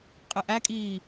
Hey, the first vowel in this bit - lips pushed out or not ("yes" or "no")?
no